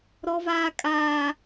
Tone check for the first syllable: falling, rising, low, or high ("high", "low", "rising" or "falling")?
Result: high